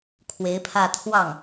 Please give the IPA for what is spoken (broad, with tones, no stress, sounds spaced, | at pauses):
kʰ w e˧˥ ɪ̯ pʰ ä˥˧ t̪ʰ w ɑ˥˩ ŋ